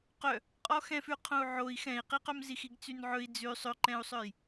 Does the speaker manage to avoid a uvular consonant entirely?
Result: no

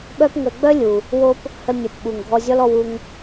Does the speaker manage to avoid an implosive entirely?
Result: no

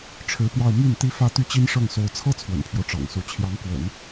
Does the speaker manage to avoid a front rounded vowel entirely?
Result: no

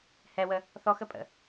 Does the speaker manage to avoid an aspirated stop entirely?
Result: yes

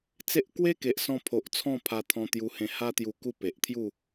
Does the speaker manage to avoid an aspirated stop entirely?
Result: no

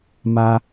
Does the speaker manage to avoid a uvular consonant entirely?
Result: yes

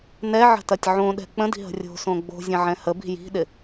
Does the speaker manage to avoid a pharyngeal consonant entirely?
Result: no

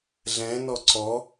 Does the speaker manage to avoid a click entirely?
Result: no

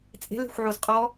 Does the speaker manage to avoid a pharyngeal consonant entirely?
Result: no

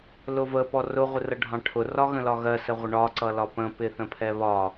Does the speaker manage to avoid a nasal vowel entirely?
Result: no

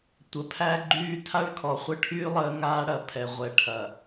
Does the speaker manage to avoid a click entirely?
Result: no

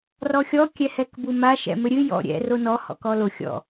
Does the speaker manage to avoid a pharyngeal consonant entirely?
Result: yes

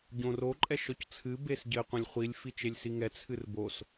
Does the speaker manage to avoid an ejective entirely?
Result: no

